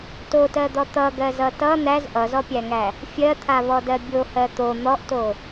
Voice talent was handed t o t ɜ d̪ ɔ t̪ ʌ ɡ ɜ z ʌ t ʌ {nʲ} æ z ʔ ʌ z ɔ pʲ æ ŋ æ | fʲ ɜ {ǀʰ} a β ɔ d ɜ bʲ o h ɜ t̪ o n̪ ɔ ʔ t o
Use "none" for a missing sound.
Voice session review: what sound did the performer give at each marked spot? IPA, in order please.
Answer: n̪, t̪ʰ

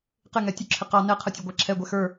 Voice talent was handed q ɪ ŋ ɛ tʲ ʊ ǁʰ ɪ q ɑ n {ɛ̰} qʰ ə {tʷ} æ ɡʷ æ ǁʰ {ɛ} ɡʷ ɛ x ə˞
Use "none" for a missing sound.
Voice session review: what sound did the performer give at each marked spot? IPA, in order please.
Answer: ɛ, tʲ, ɛ

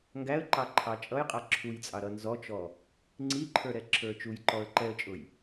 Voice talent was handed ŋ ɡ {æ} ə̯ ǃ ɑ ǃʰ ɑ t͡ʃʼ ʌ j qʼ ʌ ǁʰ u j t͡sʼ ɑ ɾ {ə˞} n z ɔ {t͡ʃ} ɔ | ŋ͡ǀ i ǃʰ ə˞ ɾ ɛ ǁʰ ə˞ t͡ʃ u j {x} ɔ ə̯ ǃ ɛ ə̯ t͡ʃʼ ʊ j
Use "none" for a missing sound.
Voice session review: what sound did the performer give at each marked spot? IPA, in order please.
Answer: æ, ʌ, t͡ʃ, ǃ

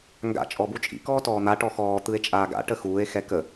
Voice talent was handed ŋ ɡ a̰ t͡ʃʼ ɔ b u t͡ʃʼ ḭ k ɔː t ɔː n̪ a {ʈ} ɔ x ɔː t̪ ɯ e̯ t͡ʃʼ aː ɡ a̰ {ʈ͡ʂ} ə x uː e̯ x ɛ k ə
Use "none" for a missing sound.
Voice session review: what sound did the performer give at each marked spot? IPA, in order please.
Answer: ʈ, ʈ

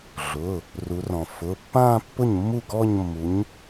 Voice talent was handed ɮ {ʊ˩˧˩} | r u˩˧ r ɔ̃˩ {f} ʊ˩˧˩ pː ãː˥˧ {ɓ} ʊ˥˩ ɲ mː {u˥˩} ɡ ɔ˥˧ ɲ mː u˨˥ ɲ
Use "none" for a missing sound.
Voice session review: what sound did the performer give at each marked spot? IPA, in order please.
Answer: ʊ˩˧˩, f, pː, u˥˩

